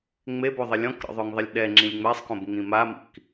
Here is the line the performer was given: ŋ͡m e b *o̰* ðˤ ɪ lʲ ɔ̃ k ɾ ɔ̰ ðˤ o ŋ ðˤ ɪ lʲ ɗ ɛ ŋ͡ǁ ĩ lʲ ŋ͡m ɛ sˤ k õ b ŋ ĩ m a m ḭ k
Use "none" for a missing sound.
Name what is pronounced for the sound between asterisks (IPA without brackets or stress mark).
o